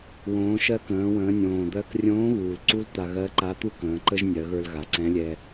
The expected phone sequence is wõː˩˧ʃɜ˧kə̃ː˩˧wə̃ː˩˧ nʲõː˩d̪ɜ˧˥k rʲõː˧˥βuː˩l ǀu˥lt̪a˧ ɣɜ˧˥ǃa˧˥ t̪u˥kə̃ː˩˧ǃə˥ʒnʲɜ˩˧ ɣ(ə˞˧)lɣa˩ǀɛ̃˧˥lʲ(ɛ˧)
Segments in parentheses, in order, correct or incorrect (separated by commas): correct, correct